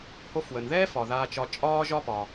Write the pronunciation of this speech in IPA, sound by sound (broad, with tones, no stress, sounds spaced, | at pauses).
h o˧ f w ə˩ n ð ɛː˥ f ɒ˩ ð aː˧ t͡ʃ ɒ˧ t͡ʃʼ ɒː˥ ʒ ɒ˥ p ɒ˩